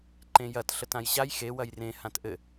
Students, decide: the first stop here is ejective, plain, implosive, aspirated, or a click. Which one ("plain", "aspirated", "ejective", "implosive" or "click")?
click